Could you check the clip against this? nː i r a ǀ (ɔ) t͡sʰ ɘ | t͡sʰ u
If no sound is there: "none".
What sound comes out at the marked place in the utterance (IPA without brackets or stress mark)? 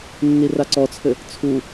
ɔ